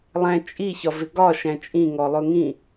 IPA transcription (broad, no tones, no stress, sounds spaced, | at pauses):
lˠ æ̃ t͡ʃʼ i ç ɒ v ɪ ɡ ɒ ʃ æ̃ t͡ʃʼ ĩ ŋ ɔ lˠ ʊ ŋ ĩ